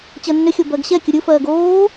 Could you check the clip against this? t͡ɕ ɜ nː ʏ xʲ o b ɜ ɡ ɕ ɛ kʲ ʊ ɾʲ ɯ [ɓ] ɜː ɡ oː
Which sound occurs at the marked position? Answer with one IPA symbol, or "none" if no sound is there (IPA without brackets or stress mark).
f